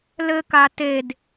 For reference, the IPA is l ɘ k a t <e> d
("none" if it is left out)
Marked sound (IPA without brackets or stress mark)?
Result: e